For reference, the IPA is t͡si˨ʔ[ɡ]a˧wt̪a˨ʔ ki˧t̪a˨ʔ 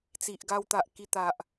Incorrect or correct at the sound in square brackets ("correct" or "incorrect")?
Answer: correct